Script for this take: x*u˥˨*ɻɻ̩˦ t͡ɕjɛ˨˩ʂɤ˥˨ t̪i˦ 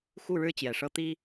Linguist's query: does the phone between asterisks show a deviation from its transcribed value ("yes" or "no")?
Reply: no